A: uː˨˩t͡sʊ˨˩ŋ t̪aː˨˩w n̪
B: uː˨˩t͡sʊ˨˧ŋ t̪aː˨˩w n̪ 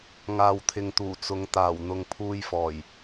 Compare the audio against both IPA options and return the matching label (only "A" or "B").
B